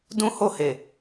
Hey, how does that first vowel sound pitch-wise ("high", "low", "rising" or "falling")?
high